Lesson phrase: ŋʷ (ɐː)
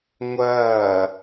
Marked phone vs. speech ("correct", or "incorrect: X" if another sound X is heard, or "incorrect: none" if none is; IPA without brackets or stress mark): correct